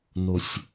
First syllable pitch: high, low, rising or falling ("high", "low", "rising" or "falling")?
high